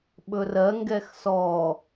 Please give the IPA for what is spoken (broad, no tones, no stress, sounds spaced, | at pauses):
ɓ ɵ r ɜ ŋ ɡ ɛ x s ɔ